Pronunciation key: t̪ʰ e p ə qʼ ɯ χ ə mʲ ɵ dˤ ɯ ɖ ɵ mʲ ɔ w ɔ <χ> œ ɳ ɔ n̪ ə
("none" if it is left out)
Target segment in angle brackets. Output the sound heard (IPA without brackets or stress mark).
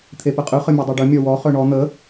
χ